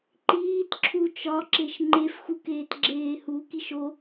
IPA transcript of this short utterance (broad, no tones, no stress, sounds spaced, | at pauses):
ǃ iː t ǁʰ u t͡ʃ ɒ ǁ e ʃ ŋ͡ǃ e f x u k eː t ɡ͡ǁ eː h u k i ʃ o